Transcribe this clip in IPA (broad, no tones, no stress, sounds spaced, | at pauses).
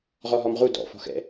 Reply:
ʁ ɔ ɦ ɔ m ʁ u d ɔ̰ f ɔ̤ x ɛ̰